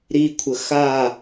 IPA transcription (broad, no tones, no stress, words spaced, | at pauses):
ɾikʷʰə xa